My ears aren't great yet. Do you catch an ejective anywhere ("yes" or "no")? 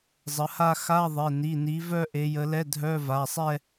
no